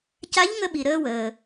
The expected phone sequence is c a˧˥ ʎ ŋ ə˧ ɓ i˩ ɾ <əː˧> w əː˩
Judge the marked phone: correct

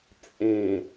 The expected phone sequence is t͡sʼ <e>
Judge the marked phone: incorrect: ẽ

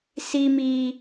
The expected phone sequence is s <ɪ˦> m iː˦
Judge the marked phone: incorrect: i˦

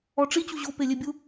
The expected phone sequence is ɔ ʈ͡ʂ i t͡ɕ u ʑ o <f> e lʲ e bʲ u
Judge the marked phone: incorrect: p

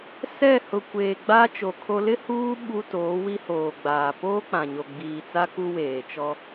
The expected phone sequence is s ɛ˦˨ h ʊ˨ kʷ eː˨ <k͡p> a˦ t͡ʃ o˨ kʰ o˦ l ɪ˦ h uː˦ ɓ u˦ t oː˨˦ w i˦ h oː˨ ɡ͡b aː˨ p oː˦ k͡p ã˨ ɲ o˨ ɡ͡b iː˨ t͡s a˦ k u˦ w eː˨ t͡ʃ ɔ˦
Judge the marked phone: incorrect: ɡ͡b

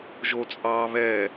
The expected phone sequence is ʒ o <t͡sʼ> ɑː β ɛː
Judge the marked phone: correct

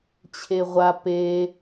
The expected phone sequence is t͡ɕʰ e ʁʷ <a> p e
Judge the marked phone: correct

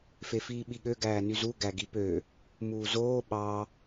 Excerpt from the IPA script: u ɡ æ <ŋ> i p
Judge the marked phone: incorrect: ɡ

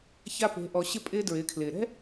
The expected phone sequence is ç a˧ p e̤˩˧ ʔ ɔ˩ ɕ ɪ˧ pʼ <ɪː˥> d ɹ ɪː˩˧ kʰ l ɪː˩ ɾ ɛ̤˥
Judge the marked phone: incorrect: ɪː˧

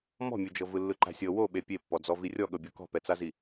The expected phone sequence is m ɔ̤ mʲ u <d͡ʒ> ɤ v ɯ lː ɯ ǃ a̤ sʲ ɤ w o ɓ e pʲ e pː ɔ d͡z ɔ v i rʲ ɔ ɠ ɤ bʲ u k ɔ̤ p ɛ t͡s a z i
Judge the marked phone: correct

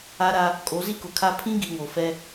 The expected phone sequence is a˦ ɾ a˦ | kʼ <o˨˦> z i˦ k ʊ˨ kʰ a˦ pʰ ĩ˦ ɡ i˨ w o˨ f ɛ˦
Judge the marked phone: correct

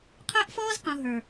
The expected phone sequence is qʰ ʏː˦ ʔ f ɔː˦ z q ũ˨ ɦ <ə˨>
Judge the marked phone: incorrect: ə˞˨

